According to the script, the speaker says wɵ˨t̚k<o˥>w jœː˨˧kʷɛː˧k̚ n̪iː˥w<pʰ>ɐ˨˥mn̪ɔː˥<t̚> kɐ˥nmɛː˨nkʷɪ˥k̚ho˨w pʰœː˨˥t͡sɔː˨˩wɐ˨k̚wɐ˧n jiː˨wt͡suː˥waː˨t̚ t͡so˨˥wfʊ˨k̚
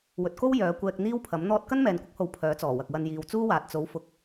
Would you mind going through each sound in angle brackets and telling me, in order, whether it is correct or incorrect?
correct, correct, correct

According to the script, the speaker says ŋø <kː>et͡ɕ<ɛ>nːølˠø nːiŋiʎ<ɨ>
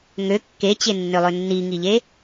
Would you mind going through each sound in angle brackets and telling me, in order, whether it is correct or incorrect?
correct, incorrect: e, incorrect: e

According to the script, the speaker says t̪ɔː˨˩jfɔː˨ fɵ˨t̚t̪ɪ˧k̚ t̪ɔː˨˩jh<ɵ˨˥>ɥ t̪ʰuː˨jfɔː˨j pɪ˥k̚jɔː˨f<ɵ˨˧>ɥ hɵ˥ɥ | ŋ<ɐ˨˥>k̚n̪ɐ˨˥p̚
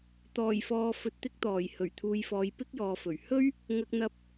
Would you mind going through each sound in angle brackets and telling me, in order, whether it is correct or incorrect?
incorrect: ɵ˨˩, incorrect: ɵ˨˩, incorrect: ɐ˨

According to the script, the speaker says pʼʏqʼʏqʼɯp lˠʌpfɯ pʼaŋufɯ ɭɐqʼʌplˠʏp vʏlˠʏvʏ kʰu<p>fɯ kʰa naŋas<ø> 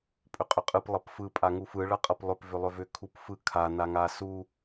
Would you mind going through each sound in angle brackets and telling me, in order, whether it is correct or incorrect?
correct, incorrect: u

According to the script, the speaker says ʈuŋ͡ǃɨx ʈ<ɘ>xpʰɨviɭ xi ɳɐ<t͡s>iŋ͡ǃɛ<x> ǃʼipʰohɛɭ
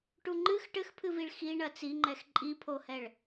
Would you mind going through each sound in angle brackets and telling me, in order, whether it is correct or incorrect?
correct, correct, correct

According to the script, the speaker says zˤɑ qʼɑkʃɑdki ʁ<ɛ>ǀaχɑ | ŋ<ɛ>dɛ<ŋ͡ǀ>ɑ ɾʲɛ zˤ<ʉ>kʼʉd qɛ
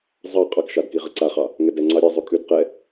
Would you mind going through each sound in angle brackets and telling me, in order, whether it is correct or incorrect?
incorrect: ə, correct, correct, correct

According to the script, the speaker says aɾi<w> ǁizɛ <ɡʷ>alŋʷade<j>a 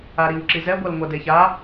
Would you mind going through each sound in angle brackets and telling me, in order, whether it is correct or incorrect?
correct, correct, incorrect: ç

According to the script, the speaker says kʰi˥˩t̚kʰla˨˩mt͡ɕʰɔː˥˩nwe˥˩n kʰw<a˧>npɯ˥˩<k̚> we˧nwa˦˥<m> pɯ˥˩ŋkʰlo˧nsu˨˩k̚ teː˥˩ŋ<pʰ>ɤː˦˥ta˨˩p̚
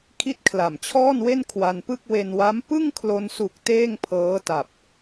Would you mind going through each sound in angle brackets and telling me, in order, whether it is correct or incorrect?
correct, correct, correct, correct

